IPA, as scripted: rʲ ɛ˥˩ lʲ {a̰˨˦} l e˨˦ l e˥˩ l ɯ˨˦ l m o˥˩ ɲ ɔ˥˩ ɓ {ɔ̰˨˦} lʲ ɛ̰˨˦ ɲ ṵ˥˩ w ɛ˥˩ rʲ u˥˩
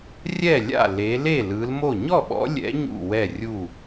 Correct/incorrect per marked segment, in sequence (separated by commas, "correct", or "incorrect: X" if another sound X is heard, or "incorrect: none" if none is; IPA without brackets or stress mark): incorrect: a̰˥˩, correct